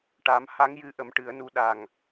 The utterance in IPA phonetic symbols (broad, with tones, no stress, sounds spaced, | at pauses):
ʈ a˨˩˦ m h a˧˥ ŋ j ɨ˧˥ ʔ ə˨˩˦ m ʈ ɨ˨˩˦ ə̯ n u˧˥ ɗ a˨˩ ŋ